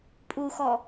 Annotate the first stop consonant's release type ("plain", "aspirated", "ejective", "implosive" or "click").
ejective